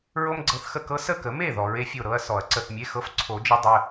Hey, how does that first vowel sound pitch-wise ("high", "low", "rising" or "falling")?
high